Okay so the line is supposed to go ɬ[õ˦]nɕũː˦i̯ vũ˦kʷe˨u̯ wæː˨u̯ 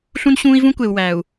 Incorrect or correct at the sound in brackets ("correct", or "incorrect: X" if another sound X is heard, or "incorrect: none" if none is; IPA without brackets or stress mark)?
incorrect: ũ˦